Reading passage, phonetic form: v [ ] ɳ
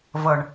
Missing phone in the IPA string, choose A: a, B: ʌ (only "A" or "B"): B